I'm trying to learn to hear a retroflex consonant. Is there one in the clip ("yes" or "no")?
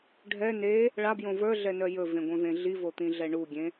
yes